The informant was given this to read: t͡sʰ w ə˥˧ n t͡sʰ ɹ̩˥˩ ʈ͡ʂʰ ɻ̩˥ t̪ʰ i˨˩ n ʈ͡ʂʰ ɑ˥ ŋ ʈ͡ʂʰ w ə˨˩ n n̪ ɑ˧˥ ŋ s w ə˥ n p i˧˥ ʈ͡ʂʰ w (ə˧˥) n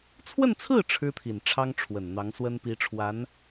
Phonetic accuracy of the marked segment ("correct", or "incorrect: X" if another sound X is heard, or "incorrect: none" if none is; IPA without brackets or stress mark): incorrect: a˧˥